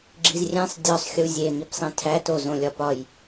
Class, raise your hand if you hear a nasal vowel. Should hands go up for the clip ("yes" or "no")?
yes